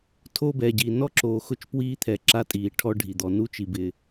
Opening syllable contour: high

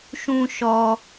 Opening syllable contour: high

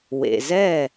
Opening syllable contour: low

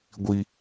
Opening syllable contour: high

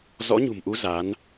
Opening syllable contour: rising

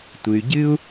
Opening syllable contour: low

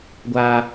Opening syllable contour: high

